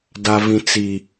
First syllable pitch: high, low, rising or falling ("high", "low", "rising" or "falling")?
high